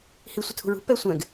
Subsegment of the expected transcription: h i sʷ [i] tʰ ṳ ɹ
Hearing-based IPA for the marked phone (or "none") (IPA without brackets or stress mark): ɪ